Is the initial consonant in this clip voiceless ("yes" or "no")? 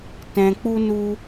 yes